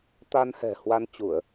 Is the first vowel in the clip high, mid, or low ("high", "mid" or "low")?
low